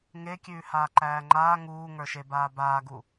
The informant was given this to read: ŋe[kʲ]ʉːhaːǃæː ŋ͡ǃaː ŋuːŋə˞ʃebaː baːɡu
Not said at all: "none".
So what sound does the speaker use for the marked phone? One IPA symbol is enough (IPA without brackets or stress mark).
kʲ